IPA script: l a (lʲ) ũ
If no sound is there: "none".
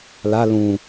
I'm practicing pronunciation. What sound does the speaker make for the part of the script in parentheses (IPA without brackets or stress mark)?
l